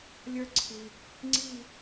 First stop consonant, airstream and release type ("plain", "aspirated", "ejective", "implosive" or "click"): click